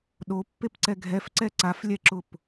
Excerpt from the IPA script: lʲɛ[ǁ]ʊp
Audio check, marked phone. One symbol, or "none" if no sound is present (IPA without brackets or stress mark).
ǁ